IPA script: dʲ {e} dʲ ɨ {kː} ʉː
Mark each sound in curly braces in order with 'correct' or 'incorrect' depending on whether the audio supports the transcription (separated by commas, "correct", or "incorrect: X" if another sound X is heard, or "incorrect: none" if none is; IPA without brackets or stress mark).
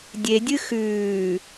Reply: correct, incorrect: x